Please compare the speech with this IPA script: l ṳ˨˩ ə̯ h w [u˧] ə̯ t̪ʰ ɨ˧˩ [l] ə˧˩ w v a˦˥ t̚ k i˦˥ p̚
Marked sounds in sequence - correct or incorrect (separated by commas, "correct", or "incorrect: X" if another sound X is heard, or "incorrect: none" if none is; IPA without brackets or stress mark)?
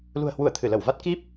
incorrect: u˧˩, correct